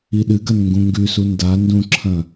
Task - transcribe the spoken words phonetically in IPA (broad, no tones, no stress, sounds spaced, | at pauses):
i ɗ ɨ ɡ ɐ n ŋ ɡ ũ ŋ ɡ ʉ s u n d a n d ũ ǁʰ ɐ̃